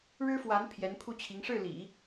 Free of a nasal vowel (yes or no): yes